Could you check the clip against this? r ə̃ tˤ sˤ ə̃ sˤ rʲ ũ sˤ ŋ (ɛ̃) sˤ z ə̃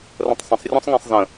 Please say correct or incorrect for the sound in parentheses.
correct